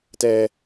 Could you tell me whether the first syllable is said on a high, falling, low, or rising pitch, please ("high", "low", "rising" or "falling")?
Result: high